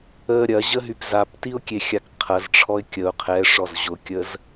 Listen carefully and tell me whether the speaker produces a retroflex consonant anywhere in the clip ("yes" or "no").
yes